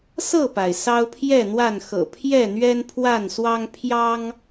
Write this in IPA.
s ɤ˥˨ p a˩ ɪ̯ s ɑ˦ ʊ̯ pʰ j ɛ˥˨ n̪ w a˥˨ n x ɤ̰˨˩ pʰ j ɛ˥˨ n̪ ɥ ɛ˦ n pʰ w a˥˨ n s w ɑ˦ ŋ pʰ j ɑ˦ ŋ

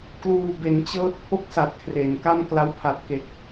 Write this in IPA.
k l uː˨˩ b e˩˦ n t͡ɕ ɤː˦˥ t̚ pʰ o˥˩ k̚ s a˨˩ t̚ kʰ r e˩˦ n k a˥˩ m k l a˦˥ w pʰ a˨˩ t̚ k e˨˩ k̚

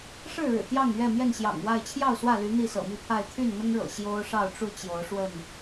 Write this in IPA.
ʂ ɻ̩˥˨ ɻ ɻ̩˨˩ t̪ j ɑ˥˨ ŋ ɥ ɛ˥˨ m j ɛ˥˨ n ɕ j ɑ̰˨˩ ŋ w a˥˨ ɪ̯ t͡ɕʰ j ɑ˥˨ ʊ̯ s w ä˥˨ l y˨˦ n̪ i˥˨ s ɤ̰˨˩ m i˥˨ pʰ a˥˨ ɪ̯ t̪ʰ y˥˨ n n̪ ʊ˦ ŋ ɻ ɤ̰˨˩ ɕ j o˦ ʊ̯ ʂ ɑ˥˨ ʊ̯ ʈ͡ʂ u˥˨ t͡ɕ j o˨˦ ʊ̯ ʂ w ə˥˨ n

